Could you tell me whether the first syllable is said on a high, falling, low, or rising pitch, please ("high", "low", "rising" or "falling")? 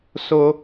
high